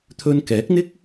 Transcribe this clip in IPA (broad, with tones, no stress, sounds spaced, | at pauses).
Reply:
t̪ʰ ɵ˧ n k ɛː˨˥ k̚ n̪ ɪ˥ k̚